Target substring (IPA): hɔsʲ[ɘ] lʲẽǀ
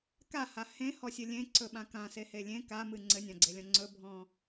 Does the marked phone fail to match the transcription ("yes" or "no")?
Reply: no